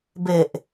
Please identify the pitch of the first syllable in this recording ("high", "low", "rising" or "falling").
low